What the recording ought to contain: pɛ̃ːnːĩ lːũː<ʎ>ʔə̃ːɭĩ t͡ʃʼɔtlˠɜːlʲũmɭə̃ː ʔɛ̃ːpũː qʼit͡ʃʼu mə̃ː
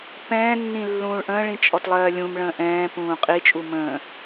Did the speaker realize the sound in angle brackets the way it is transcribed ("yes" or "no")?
no